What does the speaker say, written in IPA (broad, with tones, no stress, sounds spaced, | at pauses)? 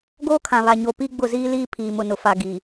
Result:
ɡ oː˦ kʰ ã˨ β a˨ ɲ o˨ p i˦ ɡ͡b ʊ˦˨ z iː˦ l iː˦ pʰ iː˨ m ʊ˨ n ʊ˨ f a˨ ɡ i˨